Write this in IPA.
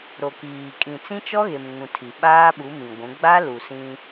ɾ o˨ k iː˨ kʼ ĩ˨ t͡s ĩ˦ t͡ʃ ɔ˦ ɣ e˨ m ŋ ũ˨ tʰ i˨ ɓ aː˦ ɓ u˨˦ m ĩ˨ ɡʷ ũ˨˦ ɡ͡b a˦ l u˨ s ĩ˦

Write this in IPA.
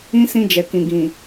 ĩ˦ s ĩ˦ d͡ʒ ɛ˨ k ĩ˨ ɡ ĩ˨

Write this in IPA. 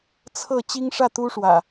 t͡sʰ ɤ˥˨ t͡ɕ i˦ ŋ ʂ ä˥˨ t̪ u˦ ʂ w ä̰˨˩

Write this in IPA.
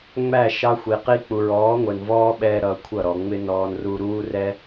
ŋ͡m æ˦˨ ʃ ɑ˦ xʷ i˨ q i˧ k͡p u˨ ɹ ɔː˨˦ ŋʷ ɛ˨ n v ɔː˦ ɓ ɛ˧ ɾ ʌ˧ kʷʰ ʌ˦˨ ɾ ɔ˨ ŋ͡m ɪ˦ n ɔː˧ n r u˧ ɾ uː˦ r ɛ˦

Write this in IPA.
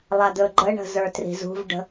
lˠ a d̪ ɵ ɡ͡ǃ ə ɳ ə̤ z ə˞ t r i̤ z ṳ v ɖ ə̤

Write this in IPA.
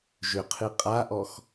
ʒ ʏ qʰ ɨ qʼ a ʔ ɔ x

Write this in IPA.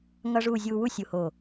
ŋ ʌ˥ ʐ uː˥˧ zʲ uː˧ w u˥˧ sʲ u˧˩ h o˧˩

